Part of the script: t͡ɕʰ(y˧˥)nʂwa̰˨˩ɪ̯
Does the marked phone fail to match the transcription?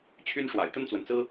yes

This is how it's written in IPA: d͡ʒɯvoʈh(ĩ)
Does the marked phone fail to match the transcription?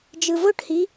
yes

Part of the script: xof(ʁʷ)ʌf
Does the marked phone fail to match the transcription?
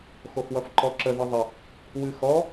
yes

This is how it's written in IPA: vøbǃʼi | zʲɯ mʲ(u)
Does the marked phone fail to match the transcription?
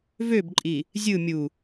no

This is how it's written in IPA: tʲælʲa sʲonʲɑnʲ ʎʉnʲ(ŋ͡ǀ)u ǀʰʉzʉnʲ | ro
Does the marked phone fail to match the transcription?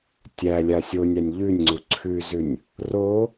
no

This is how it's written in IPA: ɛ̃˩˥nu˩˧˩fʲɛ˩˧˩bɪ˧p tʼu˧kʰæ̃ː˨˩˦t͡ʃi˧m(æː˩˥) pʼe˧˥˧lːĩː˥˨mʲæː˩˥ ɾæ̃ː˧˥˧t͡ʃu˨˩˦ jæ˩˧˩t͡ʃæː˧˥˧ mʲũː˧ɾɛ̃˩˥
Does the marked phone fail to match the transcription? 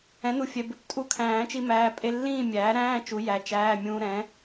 yes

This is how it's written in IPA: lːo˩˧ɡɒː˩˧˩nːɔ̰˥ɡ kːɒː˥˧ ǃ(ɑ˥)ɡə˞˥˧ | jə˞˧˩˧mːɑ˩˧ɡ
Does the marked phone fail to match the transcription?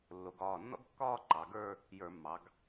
yes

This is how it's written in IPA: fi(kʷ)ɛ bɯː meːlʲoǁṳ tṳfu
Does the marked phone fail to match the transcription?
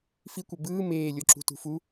no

